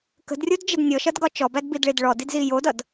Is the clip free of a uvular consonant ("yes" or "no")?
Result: yes